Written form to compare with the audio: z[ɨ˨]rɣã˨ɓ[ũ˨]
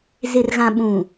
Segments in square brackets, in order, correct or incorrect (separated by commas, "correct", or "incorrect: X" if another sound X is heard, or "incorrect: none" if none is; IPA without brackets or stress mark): incorrect: ɪ˨, correct